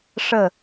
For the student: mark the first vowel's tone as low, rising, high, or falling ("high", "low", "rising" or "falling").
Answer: falling